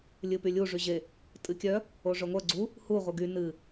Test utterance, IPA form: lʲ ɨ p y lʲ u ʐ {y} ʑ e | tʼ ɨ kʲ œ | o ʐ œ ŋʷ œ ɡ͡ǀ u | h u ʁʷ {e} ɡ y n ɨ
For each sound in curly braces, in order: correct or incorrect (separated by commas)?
correct, incorrect